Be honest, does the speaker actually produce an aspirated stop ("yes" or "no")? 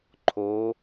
yes